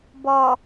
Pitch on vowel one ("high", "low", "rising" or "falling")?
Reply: low